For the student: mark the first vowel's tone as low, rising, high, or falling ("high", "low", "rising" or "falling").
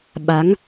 rising